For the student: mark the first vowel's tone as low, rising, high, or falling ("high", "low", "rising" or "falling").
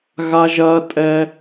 low